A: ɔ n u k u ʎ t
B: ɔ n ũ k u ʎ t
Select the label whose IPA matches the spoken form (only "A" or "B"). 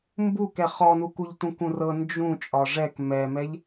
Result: A